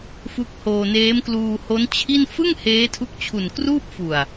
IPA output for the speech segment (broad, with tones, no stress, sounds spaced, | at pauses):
f u˦˥ k̚ h oː˧ n eː˦˥ m k l uː˧ h o˦˥ n t͡ɕʰ i˥˩ n f ɯ˥˩ ŋ h eː˦˥ tʰ u˦˥ k̚ t͡ɕʰ u˨˩ n k r uː˥˩ p̚ f u˨˩ a̯